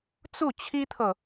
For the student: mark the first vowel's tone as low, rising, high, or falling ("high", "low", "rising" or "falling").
falling